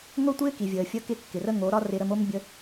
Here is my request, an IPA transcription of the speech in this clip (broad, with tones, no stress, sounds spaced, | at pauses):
ŋ o˦ tʷ ɪː˦ k i˨ vʲ əː˨ fʲ ə˧ k ɪ˧ kː ɪ˨ r ə˧ ŋ o˨˦ ɾ ɒ˦ r ɪ˧ ɾ ə˧ m o˦ m bʲ ə˧